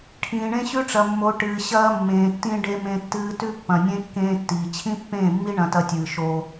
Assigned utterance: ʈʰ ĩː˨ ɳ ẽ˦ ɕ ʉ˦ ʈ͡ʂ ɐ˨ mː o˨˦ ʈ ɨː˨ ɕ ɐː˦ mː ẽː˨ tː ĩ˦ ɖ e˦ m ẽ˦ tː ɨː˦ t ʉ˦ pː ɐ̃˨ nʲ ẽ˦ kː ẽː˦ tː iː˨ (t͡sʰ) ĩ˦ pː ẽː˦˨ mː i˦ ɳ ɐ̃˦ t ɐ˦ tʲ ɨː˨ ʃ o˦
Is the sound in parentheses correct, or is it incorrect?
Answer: incorrect